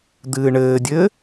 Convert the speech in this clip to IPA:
d̪ ɨː ɳ ɘː dʲ ɘː

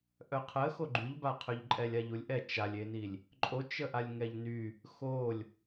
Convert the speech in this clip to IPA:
ʔ œ qʰ ə x o ɡ͡ǃ y ʎ b a qʰ ø ʎ ǃʼ ɛ lʲ a ʎ u lʲ ʔ ɛ t͡ʃ a lʲ e n i lʲ | ǃʼ o t͡ʃ ə ʔ a lʲ ŋ ɛ ʎ n y | x o lʲ

